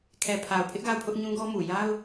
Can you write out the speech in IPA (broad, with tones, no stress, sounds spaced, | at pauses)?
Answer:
kʰ ɛ˨ pʰ a˨ ʊ̯ pʰ ɪ˦ ʔ ɡ a˦˨ ʊ̯ pʰ ʊ˦ ʔ ɲ ũ˦ ɡ ɔ˦ m u˨ j a˦ ʊ̯